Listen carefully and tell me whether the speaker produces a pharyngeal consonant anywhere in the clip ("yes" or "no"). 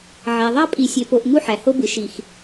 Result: yes